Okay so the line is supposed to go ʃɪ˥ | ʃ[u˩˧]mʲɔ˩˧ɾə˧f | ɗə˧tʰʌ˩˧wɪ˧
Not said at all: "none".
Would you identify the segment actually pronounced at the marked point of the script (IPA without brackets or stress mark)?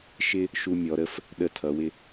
u˧